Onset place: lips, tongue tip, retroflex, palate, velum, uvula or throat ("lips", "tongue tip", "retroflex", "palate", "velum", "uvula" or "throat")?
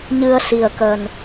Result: palate